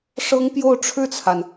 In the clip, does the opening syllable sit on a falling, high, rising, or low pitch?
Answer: high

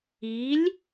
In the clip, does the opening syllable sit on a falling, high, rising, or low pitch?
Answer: rising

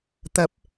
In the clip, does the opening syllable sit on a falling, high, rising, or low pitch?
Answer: rising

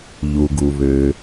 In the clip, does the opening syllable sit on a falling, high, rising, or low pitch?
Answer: low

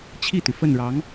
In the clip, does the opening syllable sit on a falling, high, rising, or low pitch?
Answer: falling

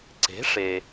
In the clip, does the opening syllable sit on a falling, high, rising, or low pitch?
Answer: rising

